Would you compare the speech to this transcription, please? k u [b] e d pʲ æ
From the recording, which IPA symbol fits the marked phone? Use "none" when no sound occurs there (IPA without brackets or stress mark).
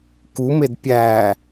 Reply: m